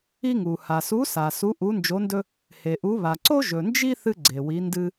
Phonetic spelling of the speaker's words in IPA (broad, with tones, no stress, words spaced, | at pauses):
i˥ŋu˨ ha˨su˧˥ sa˨su˧˥ ʔu˧˥nd͡ʒo˧˥ndɵ˥ | he˨ʔu˧˥βa˨ ǀo˥ʒɵ˨nd͡ʒi˥ θɨ˥ɡ͡ǀe˨wi˧˥ndɨ˥